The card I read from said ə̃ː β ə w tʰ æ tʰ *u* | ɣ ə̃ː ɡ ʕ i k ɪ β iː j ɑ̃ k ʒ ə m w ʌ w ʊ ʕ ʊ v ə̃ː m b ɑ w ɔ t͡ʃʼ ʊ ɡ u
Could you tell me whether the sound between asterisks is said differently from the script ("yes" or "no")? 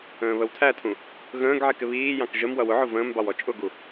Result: yes